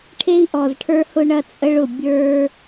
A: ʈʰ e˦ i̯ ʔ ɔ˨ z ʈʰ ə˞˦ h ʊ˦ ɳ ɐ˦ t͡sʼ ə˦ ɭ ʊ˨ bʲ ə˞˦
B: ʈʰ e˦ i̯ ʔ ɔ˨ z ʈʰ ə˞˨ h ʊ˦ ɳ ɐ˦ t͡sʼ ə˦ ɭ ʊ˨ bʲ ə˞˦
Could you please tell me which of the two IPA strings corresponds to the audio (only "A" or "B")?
A